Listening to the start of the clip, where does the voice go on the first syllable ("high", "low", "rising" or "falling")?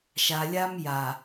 low